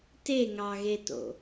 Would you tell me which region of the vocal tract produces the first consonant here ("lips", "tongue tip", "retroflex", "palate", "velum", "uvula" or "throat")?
tongue tip